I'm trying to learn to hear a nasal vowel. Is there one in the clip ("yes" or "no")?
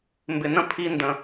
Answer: yes